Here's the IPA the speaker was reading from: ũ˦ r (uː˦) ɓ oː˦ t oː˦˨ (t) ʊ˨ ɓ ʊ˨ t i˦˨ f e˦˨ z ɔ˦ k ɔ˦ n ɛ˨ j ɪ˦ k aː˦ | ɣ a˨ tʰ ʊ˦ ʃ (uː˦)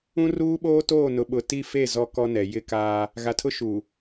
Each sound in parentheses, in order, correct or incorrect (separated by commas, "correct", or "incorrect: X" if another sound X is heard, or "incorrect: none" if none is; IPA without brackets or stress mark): correct, incorrect: n, incorrect: uː˨